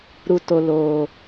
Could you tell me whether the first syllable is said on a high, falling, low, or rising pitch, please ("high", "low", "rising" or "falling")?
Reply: low